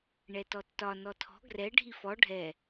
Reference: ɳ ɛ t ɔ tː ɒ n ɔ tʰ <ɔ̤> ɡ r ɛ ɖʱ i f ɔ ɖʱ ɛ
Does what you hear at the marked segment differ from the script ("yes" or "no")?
no